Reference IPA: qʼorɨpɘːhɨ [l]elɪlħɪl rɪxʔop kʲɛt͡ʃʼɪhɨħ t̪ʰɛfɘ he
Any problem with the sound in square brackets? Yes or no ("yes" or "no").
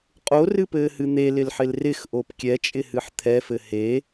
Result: yes